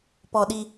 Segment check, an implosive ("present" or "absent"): present